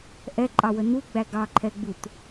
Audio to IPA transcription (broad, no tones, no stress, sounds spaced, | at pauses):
ʔ ɛ ǃʼ ɑ w ə n u ɡ͡b æ ɡ ɑ ǃʰ ɛ ɡ͡b u t